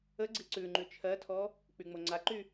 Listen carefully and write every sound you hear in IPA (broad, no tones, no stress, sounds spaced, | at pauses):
ə ɡ͡ǀ i ǀ ʉ ŋ͡ǃ ʉ t͡ʃʰ ɜ tʰ ɔ | k͡p y ŋ͡m o ŋ͡ǀ a ǃ y